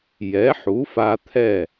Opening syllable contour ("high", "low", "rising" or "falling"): rising